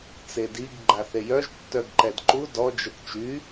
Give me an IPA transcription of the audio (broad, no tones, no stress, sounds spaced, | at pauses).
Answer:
t͡s e d i ɡ ɡ͡ǃ a θ e j œ ʒ tː œ ɡ ǃ ɛ d ǃ u d ɔ d͡ʒ ə t t͡ʃ y